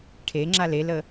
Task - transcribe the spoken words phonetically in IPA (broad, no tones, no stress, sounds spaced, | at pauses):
ʈʰ e ŋ͡ǁ a l e l ə